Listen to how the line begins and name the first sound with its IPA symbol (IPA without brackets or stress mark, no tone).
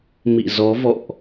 m